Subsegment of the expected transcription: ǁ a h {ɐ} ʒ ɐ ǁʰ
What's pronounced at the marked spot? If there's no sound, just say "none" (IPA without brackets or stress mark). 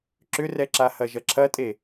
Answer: ɐ